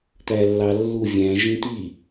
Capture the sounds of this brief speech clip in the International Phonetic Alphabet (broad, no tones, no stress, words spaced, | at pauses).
t̪ælːɑlːu vʲæ̃ ʒĩt̪i